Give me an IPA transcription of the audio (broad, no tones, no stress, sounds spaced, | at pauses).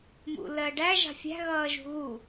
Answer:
m ṵ l ɜ ɖ æ ʒ ɑ̤ fʲ æ̤ ɣ ʌː ʒ ṳ ɣ u